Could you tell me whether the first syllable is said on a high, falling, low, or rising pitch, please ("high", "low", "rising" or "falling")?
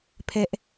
high